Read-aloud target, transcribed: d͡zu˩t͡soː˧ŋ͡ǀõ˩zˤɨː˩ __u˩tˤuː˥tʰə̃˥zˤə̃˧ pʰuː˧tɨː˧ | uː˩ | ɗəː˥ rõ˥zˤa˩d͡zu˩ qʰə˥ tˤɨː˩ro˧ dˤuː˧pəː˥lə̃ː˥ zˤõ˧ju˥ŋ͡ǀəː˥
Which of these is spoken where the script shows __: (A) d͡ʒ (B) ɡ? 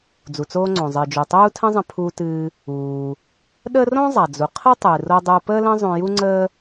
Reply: A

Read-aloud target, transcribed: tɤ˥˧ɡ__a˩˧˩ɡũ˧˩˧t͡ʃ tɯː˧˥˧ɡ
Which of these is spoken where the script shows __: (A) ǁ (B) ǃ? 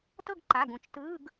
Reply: B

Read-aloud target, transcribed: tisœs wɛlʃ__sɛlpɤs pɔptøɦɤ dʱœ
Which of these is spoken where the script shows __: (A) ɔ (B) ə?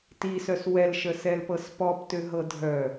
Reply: B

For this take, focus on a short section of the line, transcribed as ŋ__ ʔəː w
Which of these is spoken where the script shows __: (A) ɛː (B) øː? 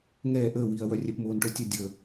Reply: A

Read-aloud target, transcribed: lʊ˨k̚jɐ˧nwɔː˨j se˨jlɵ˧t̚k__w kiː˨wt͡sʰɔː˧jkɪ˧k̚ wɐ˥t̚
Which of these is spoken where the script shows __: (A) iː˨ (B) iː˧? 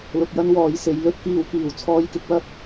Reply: A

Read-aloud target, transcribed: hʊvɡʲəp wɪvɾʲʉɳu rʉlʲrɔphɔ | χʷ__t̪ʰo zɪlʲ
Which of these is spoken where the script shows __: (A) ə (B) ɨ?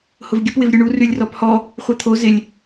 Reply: B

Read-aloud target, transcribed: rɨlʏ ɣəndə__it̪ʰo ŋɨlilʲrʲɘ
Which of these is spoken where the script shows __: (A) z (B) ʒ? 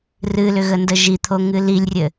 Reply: B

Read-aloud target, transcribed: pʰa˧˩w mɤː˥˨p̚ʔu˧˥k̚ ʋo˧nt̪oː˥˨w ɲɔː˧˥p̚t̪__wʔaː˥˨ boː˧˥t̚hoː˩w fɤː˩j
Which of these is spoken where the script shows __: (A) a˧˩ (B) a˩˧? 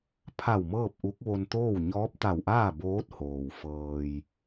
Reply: A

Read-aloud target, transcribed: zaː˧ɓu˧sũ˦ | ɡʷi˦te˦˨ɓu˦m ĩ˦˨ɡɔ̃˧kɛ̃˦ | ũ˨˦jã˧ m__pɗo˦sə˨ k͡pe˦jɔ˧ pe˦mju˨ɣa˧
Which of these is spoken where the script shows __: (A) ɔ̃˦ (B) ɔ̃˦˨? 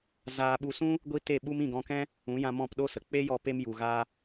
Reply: B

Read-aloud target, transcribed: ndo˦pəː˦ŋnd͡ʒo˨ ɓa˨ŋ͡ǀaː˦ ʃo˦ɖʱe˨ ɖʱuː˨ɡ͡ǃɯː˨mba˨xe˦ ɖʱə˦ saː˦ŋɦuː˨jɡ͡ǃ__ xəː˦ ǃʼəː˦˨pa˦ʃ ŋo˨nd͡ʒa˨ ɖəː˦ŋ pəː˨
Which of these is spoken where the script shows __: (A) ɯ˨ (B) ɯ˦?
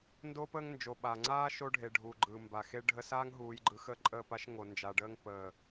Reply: A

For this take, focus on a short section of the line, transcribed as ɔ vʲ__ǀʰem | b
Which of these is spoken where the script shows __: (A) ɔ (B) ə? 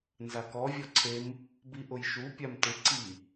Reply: A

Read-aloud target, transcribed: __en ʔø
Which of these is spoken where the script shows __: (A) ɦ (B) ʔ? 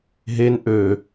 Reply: A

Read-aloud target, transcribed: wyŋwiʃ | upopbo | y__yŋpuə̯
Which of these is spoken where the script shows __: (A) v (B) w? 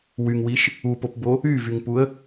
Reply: A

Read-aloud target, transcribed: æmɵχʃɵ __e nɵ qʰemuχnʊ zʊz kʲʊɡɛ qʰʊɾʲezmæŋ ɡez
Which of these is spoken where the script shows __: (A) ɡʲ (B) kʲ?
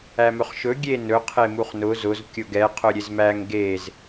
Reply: A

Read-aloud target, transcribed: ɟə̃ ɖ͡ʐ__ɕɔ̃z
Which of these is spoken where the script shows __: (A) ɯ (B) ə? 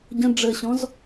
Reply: B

